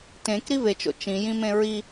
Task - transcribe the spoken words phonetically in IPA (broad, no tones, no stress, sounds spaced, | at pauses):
t ẽ k ɾ i v e t͡ʃ o̰ t͡ʃ ĩ j ĩ m ẽ ɹ i